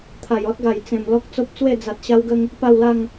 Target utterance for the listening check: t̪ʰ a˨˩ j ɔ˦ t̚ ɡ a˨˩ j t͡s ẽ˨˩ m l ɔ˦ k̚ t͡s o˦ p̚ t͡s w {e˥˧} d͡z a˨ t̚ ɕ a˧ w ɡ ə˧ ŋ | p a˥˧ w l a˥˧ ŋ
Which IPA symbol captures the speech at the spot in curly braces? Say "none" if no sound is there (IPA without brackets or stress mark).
e˥˧